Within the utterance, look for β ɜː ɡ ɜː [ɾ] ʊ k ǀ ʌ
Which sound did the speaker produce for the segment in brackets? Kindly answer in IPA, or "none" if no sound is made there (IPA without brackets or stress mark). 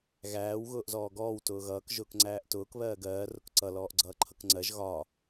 r